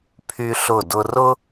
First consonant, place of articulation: labial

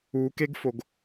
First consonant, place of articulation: velar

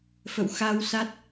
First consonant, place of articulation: labial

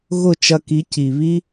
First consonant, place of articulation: velar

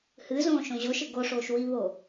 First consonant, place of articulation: glottal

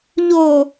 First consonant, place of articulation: palatal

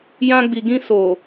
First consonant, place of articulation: palatal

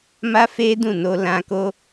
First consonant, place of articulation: labial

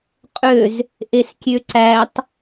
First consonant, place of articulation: uvular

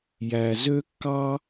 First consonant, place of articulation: palatal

